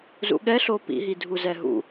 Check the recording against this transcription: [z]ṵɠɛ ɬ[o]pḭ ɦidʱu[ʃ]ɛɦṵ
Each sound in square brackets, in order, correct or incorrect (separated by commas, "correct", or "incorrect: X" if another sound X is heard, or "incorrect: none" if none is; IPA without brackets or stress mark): correct, correct, incorrect: z